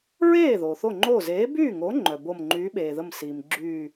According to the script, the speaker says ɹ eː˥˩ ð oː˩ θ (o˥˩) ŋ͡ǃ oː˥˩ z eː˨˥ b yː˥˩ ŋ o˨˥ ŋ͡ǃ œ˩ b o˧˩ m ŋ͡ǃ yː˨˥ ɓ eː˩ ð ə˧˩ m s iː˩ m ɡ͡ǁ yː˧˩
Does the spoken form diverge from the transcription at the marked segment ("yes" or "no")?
no